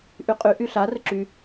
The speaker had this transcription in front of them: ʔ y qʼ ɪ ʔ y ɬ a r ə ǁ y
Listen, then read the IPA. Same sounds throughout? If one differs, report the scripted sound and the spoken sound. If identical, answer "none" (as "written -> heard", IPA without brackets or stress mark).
ɪ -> y